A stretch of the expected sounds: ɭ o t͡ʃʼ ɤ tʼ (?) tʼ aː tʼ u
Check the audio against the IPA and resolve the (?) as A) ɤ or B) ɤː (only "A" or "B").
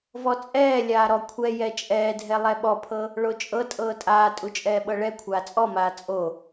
B